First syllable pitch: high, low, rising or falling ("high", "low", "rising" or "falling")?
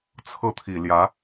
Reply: falling